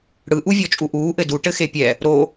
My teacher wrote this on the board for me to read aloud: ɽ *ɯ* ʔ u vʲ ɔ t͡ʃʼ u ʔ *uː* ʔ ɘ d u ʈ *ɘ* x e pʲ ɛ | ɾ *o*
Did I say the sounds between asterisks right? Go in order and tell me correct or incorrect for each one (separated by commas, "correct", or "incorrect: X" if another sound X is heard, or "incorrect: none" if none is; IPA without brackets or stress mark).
correct, correct, correct, correct